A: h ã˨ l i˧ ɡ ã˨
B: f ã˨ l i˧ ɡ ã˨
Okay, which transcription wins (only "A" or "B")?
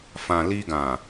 B